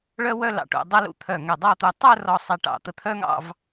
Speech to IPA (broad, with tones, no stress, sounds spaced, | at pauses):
ɭ œ˥ w œ˥ l ɑ̰˧ ʈ ṵ˧ dˤ ə˥ l ṵ˧ t̪ʰ œ˧˩ ŋ ɛ˧˩ dˤ ɑ˥˧ t̪ u˧ tˤ œ˥˧ r ɔ˧˩ sˤ ɛ˧ ʈ ɑ̰˧˩ t̪ ə˧ t̪ʰ œ˥ ŋ ɑ̰˥˧ v